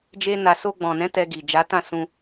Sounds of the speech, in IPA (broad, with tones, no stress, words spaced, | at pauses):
d͡ʒe˦na˧ so˧ɡ͡bɔ̃˨nɛ̃˨˦ tɛ˧ɡi˨ d͡ʒa˨˦tã˦˨ sũ˧